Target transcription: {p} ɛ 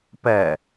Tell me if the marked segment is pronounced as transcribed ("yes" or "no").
yes